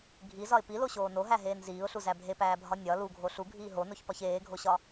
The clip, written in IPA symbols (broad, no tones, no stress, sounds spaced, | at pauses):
ɡʱ i z ɒ ɪ̯ p i l o ɕ oː n o ɦ æ ɦ eː n z iː ʊ̯ ɬ u z æ bʱ e p æː bʱ ɒ nʲ ɒ l u ɡʱ o ɬ u ɡʱ iː ɦ o n o ç p ɒ ç eː ɡʱ o ɕ ɒ